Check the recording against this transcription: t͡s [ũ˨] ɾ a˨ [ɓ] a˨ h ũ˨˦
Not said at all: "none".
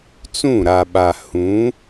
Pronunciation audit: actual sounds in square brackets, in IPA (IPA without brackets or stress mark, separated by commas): ũ˦˨, ɓ